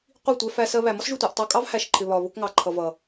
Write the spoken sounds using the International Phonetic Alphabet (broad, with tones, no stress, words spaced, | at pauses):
qʷi˦˨tʷɛ˧fæ˧ sɜ˧βæ˨ mɒ˦sʒu˨tʷɛ˨ʔ tˤɑ˧kʼɑ˦vhæ˨ʃ ǃʰɪ˨βɒ˨βʊ˧k ŋɑ˨ǃʰʌ˨vʌ˨